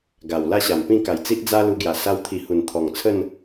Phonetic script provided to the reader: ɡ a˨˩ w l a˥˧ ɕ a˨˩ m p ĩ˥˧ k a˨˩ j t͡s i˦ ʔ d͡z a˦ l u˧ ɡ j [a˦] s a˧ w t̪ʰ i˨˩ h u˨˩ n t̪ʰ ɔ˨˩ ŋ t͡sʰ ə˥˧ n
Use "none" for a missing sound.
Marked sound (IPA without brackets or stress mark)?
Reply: a˨˩